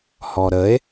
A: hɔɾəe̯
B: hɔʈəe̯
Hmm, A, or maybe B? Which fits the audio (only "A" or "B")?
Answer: A